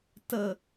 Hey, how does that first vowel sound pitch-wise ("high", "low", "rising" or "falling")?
low